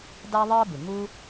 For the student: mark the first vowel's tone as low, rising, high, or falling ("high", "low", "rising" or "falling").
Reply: high